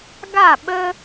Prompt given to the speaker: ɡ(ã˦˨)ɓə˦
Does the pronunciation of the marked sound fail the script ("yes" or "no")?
yes